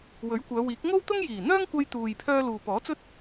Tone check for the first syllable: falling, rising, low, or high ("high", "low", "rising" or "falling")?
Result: rising